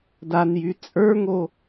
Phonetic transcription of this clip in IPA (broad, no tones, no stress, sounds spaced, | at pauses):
d a n j y t͡sʼ ə˞ ŋ o